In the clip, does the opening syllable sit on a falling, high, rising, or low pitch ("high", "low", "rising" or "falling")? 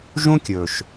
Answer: high